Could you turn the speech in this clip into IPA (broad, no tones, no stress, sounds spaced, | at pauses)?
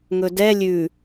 ŋ ɵ d ɛ lʲ ʉ